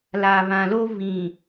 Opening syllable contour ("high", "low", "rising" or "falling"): low